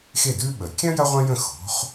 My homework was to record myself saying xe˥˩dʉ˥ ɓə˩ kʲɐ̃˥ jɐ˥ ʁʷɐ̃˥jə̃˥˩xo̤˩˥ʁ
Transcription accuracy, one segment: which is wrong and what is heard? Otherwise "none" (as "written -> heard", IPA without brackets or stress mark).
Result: ʁ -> χ